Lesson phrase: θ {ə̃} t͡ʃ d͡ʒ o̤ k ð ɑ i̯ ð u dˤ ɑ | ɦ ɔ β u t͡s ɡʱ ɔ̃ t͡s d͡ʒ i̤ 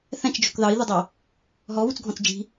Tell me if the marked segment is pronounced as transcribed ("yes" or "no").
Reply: no